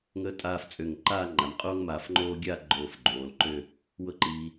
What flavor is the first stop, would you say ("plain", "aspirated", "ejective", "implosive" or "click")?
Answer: ejective